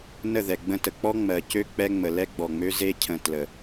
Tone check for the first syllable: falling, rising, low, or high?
falling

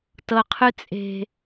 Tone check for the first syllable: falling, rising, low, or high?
low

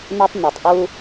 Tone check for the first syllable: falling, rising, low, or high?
high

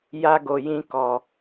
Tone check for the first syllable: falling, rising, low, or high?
high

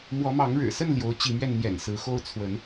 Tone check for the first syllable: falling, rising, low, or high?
rising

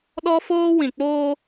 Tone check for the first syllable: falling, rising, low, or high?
high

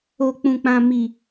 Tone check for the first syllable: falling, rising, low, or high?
low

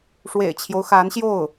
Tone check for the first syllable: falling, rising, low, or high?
low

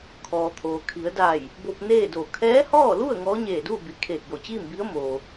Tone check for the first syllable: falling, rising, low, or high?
low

